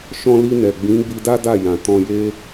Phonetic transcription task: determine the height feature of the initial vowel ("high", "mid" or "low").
mid